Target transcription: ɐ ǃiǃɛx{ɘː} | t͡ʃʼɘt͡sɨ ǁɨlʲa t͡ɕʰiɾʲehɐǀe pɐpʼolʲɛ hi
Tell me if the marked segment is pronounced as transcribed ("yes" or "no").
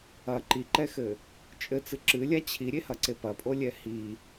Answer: no